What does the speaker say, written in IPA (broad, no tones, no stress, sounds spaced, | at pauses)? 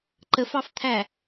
ǃ ə f ɑ f t̪ʰ æ